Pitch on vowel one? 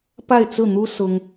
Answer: falling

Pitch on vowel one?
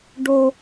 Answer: high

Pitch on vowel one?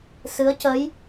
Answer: rising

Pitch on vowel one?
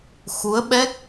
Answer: rising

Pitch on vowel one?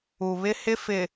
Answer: low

